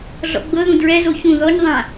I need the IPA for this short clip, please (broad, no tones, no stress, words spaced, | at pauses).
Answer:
ɮɔ̰ɡ͡bɤðũ dɹɛzo çũ ðɔɲ ðˤã